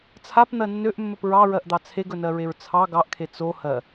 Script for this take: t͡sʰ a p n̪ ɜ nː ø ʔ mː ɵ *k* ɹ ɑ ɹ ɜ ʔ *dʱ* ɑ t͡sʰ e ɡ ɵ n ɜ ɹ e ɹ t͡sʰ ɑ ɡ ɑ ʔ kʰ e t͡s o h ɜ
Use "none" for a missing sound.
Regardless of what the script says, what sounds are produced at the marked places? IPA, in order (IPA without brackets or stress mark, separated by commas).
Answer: p, d̪